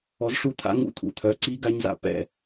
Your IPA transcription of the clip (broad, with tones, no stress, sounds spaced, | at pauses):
ɔ˨˥ z ʂ u˥˨ t̪ʰ a̰˦˥ ŋ ṵ˦˥ t̪ʰ ṵ˨ t̪ʰ œ˨˥ ǀ i˦˥ ɡ a˦˥ ɲ z a̰˦˥ p ɛ̰˥˨